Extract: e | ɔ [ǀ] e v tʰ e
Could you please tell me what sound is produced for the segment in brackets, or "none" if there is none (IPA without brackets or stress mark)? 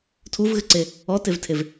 t